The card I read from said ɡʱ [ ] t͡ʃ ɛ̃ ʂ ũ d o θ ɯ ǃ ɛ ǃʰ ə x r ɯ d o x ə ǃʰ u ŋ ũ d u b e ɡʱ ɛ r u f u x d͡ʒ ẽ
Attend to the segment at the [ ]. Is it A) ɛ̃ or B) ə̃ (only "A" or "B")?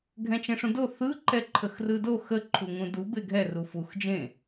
A